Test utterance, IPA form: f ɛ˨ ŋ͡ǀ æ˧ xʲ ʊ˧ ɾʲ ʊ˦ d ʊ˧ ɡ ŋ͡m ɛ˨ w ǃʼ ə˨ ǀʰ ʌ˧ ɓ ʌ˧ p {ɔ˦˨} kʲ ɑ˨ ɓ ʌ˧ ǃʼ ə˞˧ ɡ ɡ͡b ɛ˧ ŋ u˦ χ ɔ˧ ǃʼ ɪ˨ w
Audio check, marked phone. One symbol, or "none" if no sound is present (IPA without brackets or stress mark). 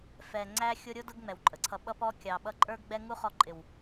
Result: ɔ˧